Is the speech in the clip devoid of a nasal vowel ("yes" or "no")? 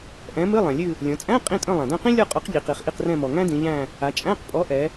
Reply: no